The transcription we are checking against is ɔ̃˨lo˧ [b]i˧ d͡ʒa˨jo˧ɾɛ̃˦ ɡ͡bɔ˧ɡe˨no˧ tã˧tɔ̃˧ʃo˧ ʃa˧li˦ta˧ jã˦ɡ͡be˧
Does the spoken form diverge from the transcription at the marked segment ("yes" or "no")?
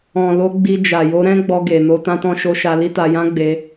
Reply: yes